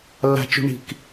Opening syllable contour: high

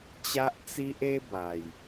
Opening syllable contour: high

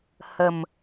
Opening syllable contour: low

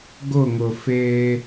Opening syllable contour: falling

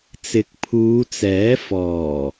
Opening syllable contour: rising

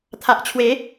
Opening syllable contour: low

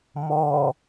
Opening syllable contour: low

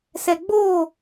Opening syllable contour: low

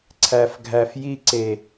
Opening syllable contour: low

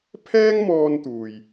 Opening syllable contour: high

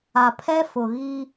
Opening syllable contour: low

